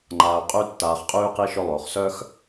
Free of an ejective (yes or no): no